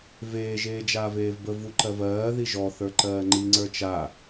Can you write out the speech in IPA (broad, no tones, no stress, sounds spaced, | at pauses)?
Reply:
v eː ʒ eː d͡ʒ aː v eː v b ə v u ǃ ɜ v ɜː ð i ʒ ɔ θ ə˞ ǃ ɜː ŋ͡ǃ i ŋ͡ǀ ə˞ t͡ʃ a